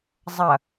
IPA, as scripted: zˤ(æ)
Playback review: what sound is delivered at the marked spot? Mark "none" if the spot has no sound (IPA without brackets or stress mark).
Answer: ɐ